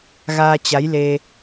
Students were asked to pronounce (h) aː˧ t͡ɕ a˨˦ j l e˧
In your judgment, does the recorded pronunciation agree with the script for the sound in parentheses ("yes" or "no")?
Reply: no